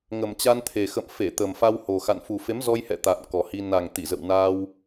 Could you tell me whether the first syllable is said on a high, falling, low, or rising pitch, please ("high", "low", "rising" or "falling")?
low